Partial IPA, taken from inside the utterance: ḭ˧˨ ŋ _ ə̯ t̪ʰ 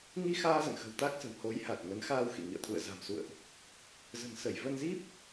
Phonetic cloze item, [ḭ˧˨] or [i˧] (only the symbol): ḭ˧˨